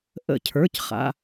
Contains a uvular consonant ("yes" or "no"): yes